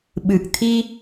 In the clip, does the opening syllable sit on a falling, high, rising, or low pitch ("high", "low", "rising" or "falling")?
low